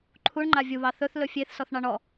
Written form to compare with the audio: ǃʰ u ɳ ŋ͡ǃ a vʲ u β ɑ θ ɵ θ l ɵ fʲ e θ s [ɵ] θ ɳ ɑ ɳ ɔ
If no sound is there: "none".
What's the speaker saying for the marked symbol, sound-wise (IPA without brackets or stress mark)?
ɔ